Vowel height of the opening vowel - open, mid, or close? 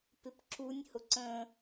close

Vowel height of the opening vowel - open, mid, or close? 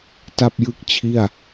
open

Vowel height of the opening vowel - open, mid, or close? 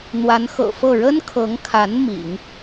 open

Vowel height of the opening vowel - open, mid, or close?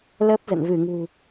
mid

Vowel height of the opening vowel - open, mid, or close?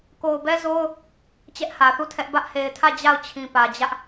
mid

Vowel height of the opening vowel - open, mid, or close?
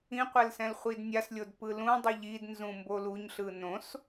close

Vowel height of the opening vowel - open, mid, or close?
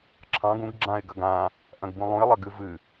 open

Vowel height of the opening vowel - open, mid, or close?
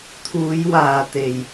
close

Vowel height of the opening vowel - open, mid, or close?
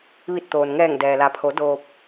close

